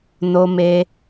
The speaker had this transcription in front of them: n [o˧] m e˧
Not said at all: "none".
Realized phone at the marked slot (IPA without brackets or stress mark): o˧